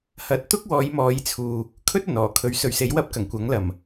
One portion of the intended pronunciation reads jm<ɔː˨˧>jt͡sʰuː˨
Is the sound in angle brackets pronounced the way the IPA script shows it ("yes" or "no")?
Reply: yes